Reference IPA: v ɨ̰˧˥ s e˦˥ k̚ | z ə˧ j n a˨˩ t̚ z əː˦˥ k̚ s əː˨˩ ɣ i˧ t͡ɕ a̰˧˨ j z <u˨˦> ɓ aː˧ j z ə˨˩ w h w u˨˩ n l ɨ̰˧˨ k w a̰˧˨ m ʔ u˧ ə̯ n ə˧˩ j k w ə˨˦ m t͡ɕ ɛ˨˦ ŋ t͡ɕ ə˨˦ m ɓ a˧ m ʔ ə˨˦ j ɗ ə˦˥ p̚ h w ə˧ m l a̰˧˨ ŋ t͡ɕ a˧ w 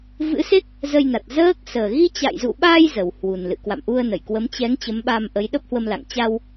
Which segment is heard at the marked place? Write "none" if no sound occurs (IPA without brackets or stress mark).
ṵ˧˨